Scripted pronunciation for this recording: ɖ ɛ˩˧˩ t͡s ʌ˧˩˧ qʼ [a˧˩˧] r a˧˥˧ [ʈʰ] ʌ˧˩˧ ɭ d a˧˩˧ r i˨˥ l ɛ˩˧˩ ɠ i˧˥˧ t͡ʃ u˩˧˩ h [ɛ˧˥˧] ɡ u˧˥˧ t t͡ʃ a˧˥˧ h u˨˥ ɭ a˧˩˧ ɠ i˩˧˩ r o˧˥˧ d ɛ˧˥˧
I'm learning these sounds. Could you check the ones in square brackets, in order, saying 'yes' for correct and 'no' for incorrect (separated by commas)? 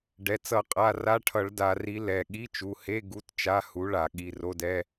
no, yes, no